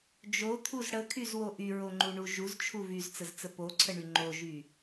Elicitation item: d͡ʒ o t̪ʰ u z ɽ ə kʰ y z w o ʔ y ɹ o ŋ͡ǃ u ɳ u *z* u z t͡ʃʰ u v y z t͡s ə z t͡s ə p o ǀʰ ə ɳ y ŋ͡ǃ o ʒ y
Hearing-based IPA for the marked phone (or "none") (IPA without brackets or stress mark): ʒ